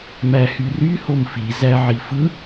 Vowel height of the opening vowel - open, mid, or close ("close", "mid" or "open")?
open